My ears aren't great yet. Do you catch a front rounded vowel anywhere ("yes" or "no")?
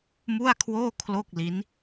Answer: no